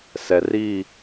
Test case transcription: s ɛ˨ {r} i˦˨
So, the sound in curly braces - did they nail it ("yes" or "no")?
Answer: yes